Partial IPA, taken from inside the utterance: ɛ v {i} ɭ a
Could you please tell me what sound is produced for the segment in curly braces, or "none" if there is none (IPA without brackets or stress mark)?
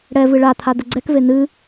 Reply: ɨ